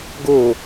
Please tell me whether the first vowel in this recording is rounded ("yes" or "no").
yes